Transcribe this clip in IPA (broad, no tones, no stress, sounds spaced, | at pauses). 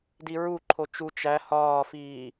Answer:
d i ɹ u ǃʰ o t͡ʃ u t͡ʃ æ h ɒː f iː